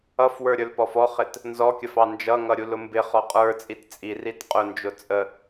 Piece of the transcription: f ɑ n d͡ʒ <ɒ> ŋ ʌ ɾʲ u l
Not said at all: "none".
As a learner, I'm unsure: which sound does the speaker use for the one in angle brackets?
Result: ʌ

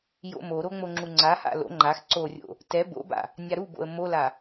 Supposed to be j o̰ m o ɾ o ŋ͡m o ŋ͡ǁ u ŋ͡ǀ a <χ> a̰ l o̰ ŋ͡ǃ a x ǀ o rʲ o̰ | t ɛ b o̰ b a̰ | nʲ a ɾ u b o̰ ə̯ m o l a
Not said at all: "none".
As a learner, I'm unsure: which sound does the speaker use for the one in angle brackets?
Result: h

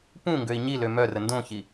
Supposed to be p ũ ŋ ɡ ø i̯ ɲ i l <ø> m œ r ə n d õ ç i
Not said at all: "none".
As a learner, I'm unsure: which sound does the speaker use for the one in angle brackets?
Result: ø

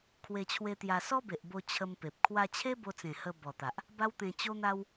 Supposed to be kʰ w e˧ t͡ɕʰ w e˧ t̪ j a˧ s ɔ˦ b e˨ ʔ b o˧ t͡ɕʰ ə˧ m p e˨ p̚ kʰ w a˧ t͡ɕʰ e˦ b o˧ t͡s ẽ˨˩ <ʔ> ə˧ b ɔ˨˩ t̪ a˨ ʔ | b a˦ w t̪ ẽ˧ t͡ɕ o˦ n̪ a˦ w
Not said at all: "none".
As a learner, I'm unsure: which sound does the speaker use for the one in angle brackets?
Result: h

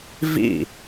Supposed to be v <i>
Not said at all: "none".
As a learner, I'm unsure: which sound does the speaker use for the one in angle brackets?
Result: ḭ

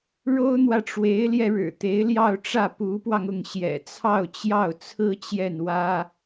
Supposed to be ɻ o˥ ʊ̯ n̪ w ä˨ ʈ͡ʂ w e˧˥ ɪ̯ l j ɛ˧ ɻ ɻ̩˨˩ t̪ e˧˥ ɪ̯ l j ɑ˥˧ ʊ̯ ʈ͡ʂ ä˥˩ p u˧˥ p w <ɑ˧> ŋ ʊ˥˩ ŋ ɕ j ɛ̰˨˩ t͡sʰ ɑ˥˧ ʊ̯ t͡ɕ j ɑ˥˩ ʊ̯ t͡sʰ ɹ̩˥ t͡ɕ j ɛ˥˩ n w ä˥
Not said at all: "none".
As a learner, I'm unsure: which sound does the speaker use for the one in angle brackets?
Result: ɑ˧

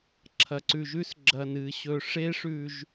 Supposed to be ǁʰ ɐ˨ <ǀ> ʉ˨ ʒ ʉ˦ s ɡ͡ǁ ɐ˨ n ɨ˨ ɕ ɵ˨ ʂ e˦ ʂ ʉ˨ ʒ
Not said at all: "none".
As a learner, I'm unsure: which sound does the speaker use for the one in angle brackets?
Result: ǀ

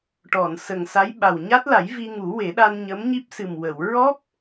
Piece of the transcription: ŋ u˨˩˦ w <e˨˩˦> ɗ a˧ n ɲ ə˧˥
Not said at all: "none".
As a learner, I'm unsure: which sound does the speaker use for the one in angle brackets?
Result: e˨˩˦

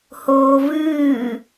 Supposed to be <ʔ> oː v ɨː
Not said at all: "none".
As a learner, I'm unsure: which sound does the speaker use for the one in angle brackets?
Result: h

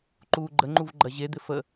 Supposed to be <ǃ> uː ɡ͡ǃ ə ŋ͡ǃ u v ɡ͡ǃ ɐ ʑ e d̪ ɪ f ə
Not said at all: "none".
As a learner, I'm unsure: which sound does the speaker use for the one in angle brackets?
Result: ǃ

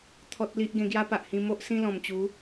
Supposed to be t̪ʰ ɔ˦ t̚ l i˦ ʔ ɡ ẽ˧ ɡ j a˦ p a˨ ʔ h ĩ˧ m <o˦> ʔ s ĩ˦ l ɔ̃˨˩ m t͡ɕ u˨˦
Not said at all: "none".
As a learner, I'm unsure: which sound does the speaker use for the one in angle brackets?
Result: o˦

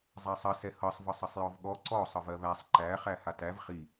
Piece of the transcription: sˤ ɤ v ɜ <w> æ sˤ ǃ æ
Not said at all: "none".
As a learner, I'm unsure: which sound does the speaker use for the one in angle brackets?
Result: β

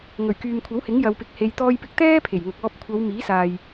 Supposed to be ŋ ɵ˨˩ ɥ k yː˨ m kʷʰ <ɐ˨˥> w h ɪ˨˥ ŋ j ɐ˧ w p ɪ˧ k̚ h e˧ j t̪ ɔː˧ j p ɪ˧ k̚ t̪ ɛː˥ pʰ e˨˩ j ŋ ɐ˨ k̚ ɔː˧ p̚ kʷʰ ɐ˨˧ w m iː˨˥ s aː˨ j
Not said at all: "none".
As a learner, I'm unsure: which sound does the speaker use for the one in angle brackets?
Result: ɐ˨˥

